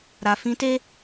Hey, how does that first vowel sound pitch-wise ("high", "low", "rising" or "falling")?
low